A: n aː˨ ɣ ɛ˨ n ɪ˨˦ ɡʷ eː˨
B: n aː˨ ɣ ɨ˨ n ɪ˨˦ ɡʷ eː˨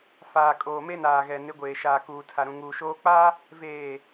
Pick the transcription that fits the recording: A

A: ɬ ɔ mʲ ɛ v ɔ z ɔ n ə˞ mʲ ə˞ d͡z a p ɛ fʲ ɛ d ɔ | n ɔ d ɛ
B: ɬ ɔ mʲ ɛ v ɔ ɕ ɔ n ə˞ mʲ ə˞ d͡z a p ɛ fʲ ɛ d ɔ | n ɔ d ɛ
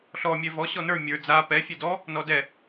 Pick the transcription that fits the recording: B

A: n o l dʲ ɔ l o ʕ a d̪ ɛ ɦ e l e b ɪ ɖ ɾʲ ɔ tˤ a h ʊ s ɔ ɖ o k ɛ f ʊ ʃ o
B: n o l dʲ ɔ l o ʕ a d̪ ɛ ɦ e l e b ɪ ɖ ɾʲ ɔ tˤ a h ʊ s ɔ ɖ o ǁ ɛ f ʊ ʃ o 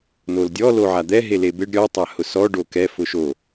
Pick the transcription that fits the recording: A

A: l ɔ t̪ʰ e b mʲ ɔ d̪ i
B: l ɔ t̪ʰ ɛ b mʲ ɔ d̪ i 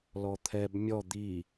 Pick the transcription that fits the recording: B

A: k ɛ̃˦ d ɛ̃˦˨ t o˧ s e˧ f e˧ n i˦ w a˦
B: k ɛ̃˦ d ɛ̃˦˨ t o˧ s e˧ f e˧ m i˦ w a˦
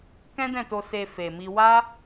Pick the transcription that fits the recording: B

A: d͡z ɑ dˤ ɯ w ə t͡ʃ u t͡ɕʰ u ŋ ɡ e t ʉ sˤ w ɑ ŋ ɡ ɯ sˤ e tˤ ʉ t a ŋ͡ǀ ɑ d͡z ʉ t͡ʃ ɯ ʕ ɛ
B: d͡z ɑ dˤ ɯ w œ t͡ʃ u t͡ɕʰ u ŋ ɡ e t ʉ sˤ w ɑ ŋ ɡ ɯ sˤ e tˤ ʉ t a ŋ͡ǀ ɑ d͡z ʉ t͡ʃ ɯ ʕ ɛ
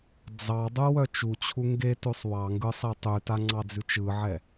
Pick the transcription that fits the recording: B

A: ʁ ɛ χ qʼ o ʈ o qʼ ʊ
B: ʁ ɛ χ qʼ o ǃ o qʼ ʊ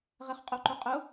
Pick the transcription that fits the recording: B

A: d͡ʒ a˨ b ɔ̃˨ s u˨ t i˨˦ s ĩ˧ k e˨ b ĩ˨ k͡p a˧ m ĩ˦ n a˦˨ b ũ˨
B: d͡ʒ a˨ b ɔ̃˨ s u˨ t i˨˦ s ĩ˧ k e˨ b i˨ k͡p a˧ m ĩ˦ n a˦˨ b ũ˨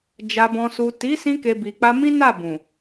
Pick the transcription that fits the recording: B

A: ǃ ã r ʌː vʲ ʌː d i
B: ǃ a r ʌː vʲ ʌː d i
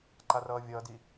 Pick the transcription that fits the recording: B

